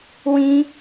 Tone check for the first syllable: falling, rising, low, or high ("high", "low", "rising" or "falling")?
high